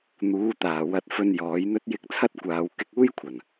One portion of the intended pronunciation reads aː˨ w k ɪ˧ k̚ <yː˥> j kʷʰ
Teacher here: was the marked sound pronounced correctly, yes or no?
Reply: no